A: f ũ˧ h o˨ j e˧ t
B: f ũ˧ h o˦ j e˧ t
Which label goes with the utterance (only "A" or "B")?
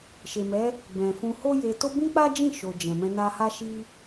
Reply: B